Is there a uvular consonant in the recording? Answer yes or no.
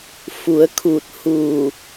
no